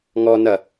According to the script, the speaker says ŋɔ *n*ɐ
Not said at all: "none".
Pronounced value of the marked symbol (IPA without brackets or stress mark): n